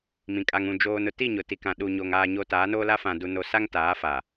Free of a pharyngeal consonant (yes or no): yes